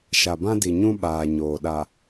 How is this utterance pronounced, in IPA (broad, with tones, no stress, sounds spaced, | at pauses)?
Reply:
ʃ a˨ b ã˦ d i˨ ɲ ũ˦ ɓ aː˨ ɲ oː˨ ɗ a˨